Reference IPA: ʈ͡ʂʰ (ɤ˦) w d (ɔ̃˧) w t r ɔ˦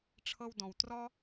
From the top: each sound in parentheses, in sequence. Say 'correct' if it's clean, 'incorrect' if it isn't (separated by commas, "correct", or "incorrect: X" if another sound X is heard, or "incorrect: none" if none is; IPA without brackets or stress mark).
correct, correct